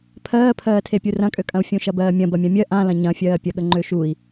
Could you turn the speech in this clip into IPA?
pʰ ɜː pʰ ɜː tʰ e pʲ u r ɐ̃ kʼ ø kʼ ɐ̃ u̯ fʲ ũ ʃ ɐ b ɜː mʲ ɐ̃ b ɐ mʲ ã mʲ ɜ ʔ ã l ɐ̃ ɲ ɐ̃ fʲ ɜː pʲ ɐ ɠ ə ŋ͡ǃ ø ʃ u i̯

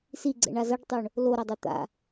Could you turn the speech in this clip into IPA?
s i ɡ͡ǀ ɛ̰ ɳ a z ʌ ɖ tˤ o ɳ | l o ɾ a dˤ e t̪ a̰

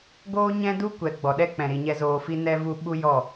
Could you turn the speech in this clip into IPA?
ɡ oː˦ ɲ ɛ̃˦ d u˦ kʷ ɛ˨ ɡ͡b ɔ˨ ɗ ɛ˦ k͡p ɛ̃˨ ɾ i˨ ɲ ɛ˧ z oː˧ f i˦ n ɛ˦ v u˦ ɓ u˦ j ɔ˦˨

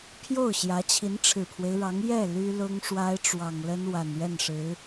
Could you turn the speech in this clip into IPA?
pʰ j o˥˩ ʊ̯ ɕ j ä˧˥ t͡ɕʰ i˧˥ n ʈ͡ʂʰ ɻ̩˨˩ pʰ w e˦ ɪ̯ ɻ ɑ˧˥ ŋ j ɛ˥˩ l y˥ l ʊ˥ ŋ ʂ w a˥ ɪ̯ ʈ͡ʂ w ɑ˨˩ ŋ l ə˥ n w a˨˩ n ɥ ɛ˥˩ n ʂ ɻ̩˧˥

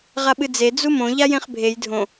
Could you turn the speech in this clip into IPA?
ʁ a ɓ ɨ d͡z e d͡z u m õ ʎ a j ẽ χ bʱ e j dʱ õ

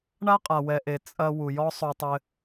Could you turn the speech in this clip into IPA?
ɳ a˥ qʼ a˩ w ɛ˩ ʔ e˩ t͡sʼ ɐ˧ w u˩ j ɔ˥ sˤ o˧ tˤ ɘ˧

